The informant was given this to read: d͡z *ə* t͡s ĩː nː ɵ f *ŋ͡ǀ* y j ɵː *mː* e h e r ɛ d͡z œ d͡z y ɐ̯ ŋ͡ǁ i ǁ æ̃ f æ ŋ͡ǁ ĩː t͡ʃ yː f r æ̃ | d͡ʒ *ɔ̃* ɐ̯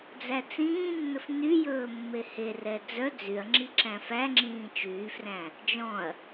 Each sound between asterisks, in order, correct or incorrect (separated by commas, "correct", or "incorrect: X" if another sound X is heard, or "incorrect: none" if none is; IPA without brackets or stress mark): incorrect: æ, incorrect: n, correct, correct